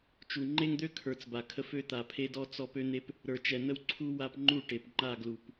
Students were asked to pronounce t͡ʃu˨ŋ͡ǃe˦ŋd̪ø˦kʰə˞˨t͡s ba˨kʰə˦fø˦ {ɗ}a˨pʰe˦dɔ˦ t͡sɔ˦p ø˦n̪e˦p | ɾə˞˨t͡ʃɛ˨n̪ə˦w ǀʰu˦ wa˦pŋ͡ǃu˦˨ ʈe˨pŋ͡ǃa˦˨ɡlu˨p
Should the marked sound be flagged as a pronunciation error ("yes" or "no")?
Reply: yes